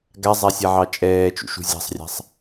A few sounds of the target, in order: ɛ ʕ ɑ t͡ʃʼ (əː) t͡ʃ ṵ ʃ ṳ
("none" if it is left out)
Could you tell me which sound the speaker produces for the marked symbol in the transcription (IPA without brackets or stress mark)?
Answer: ɛː